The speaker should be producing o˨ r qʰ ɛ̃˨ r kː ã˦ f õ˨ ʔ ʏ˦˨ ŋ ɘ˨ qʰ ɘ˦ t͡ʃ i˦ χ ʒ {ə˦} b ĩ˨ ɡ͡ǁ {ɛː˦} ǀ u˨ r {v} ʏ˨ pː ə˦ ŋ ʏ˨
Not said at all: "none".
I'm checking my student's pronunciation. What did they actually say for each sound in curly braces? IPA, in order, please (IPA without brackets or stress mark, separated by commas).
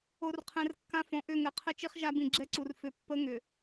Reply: a˦, ɛ˦, f